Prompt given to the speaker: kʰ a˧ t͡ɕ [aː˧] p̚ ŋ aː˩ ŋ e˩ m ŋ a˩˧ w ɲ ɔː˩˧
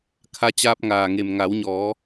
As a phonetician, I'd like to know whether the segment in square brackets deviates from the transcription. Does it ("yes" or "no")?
no